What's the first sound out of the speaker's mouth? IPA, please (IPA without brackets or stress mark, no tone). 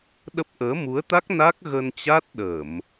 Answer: ɗ